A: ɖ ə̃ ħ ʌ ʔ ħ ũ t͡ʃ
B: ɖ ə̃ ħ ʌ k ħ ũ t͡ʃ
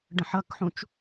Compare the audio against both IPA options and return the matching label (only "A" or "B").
B